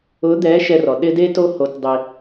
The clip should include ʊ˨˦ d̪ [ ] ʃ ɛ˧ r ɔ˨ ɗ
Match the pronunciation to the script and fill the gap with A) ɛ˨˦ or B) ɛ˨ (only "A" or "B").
A